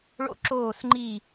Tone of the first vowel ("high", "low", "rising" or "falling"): falling